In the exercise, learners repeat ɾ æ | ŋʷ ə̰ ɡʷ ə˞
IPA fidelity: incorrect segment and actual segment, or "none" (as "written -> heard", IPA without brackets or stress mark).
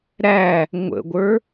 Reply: none